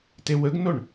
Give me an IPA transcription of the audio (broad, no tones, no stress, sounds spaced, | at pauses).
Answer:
t e w ə ɡ n o ɳ